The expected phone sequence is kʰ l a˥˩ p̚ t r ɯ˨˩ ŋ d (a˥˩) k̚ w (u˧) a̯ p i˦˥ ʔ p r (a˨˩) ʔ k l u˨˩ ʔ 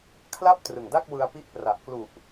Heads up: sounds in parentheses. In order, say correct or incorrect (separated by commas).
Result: correct, incorrect, correct